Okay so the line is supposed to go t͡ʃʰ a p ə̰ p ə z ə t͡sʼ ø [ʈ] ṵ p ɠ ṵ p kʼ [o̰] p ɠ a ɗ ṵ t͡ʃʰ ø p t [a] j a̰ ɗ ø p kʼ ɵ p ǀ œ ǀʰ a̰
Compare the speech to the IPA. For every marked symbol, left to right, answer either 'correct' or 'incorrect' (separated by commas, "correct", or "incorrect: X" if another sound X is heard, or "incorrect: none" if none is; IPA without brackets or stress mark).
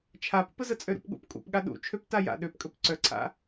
incorrect: ɾ, incorrect: ṵ, correct